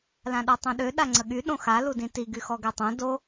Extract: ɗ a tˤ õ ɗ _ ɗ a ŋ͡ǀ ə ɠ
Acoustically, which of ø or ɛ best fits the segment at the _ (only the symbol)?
ø